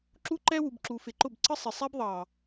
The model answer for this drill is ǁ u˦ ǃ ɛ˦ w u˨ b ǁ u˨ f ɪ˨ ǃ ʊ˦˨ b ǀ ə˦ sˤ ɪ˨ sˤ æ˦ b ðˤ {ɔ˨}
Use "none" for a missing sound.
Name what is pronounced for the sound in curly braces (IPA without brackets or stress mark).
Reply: ɑ˨